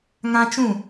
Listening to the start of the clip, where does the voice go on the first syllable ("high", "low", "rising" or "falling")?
high